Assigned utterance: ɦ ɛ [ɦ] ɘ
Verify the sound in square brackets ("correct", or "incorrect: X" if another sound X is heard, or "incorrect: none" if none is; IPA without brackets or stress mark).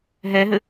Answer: correct